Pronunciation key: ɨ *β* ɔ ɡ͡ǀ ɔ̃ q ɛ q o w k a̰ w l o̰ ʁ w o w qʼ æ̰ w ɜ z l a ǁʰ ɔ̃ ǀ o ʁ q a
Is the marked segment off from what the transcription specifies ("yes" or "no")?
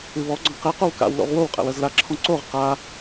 no